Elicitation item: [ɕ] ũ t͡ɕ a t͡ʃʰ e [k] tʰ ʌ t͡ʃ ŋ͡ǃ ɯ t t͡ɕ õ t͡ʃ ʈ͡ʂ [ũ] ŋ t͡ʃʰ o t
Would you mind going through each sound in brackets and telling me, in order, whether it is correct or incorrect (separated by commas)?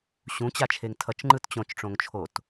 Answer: correct, incorrect, incorrect